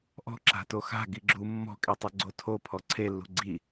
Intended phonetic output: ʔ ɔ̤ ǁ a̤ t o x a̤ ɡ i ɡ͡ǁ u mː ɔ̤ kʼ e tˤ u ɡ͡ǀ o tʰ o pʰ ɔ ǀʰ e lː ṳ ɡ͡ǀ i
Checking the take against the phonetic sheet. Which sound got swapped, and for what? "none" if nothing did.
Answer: none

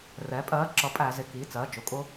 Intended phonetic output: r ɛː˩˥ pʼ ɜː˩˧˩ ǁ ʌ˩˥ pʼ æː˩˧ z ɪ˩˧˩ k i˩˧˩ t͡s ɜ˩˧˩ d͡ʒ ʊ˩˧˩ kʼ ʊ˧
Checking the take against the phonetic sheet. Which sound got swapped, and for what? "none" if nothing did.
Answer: none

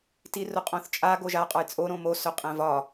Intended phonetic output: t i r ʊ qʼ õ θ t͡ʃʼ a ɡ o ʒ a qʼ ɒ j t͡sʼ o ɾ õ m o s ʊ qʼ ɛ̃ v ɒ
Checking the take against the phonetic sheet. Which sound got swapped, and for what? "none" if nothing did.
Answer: none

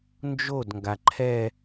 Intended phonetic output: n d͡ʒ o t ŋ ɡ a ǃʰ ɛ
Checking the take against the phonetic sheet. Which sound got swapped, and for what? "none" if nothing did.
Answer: t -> d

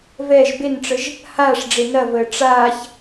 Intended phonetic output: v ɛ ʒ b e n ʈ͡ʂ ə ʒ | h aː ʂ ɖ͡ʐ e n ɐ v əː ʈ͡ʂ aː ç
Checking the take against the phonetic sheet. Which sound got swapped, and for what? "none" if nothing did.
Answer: none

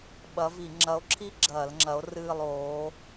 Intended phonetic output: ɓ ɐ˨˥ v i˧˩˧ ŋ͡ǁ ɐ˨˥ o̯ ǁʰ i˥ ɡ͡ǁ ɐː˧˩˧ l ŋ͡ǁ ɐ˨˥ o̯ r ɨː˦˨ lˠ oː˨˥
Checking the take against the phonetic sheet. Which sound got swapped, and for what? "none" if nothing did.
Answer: none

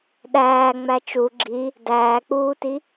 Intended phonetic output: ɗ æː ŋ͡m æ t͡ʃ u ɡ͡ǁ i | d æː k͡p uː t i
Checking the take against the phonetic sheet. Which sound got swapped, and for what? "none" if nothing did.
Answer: none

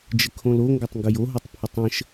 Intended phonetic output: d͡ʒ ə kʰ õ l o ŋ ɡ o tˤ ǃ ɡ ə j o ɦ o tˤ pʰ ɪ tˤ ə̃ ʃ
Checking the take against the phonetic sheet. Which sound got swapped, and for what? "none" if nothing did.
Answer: ǃ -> ŋ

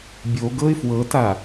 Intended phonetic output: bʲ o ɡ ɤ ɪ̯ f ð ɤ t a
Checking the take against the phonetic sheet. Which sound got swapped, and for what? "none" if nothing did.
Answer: ð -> w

